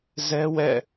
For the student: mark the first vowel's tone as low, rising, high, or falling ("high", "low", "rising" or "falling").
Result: high